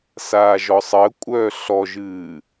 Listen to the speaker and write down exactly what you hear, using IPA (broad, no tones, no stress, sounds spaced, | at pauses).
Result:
s aː ʒ ɔ sˤ əː kʷʼ œː ɬ ɔ ʒ ɨː